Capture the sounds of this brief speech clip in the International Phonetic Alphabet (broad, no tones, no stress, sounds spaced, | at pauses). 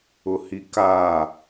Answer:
ʊ h i k a